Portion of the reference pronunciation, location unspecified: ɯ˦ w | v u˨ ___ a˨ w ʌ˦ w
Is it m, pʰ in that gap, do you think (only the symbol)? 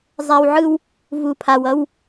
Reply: pʰ